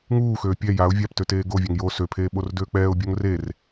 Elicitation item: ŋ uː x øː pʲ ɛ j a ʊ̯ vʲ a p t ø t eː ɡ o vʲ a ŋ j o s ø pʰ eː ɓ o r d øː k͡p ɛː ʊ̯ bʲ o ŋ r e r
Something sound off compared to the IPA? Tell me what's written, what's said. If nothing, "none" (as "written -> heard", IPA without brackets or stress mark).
none